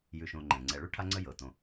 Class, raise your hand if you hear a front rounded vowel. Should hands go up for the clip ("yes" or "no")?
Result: no